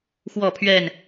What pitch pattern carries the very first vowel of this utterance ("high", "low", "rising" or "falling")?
falling